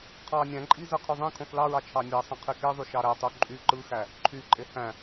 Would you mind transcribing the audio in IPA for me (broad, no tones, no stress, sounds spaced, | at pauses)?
qʰ ɑ nʲ æ̃ ǃʼ i z ɯ qʰ y ðˤ ẽ kʰ õ θ l ɑ ɹ ɑ t͡ʃʰ ɑ nʲ æ sˤ ẽ qʰ i k e ðˤ y ʃ ɑ ɾ æ tˤ u ǃʼ y ǃ ɯ x æ | ǃʰ y ǃʼ e h æ̃